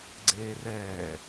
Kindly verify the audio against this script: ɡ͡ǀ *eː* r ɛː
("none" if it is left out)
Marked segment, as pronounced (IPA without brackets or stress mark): eː